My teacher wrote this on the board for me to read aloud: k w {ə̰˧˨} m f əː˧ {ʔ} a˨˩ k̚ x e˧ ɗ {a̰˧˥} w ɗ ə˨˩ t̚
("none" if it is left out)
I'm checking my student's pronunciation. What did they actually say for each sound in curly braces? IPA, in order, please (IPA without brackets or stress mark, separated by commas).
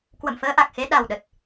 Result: ə̰˧˨, ʔ, a˨˩